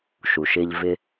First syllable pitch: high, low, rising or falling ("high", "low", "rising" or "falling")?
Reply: low